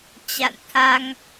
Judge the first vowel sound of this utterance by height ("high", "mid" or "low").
low